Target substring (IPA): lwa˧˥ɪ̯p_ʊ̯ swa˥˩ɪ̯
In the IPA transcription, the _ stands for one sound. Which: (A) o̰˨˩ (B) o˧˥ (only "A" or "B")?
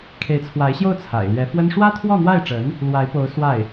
B